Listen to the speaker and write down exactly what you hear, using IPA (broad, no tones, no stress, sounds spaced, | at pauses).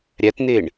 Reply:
ɾʲ æ t n̪ e ɳ